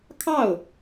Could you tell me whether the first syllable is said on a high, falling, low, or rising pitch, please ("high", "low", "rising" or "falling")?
falling